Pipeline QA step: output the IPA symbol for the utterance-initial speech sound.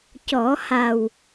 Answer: c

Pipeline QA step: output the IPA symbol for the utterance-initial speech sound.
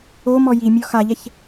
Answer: o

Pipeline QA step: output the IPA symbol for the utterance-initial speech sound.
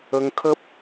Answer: ə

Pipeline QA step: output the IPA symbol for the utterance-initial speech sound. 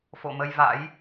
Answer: f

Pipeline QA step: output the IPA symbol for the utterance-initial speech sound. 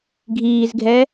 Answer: ɡʱ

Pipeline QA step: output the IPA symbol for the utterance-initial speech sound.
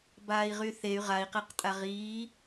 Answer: b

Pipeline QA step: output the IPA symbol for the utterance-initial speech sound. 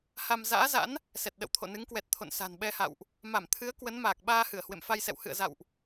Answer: h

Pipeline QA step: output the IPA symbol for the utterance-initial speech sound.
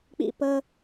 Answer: k͡p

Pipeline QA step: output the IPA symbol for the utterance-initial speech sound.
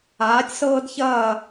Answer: aː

